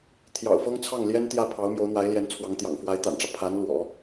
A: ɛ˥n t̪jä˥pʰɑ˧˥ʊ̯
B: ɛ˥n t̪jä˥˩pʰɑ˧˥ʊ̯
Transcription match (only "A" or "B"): B